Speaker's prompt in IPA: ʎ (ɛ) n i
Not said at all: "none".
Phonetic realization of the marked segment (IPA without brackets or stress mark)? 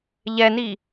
ɛ